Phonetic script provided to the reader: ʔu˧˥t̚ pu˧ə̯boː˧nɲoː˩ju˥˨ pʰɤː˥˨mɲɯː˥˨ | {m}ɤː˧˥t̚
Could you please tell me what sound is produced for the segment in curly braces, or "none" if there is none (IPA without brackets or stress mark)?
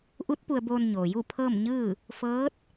f